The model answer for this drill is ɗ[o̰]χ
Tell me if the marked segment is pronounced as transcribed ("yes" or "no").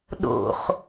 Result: yes